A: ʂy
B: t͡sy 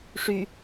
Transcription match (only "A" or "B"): A